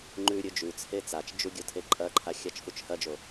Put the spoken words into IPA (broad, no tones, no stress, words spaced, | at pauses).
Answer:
ŋ͡ǃʉ ɾʲɵd͡ʒʉt͡sʰe t͡sat͡ʃd͡ʒu ɡʲotʰeǃʼɐǃʰa xʲat͡ʃfut͡ʃhɐd͡ʒo